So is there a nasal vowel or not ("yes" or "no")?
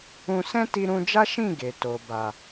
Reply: yes